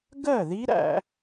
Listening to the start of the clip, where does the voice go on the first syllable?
falling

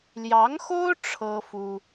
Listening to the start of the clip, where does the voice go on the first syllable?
rising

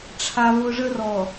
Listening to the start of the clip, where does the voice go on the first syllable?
high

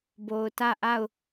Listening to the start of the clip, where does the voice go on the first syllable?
low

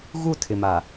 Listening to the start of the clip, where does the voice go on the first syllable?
falling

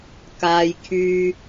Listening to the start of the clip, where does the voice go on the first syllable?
high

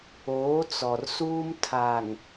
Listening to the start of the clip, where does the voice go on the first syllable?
rising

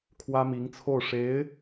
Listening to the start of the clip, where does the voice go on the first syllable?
high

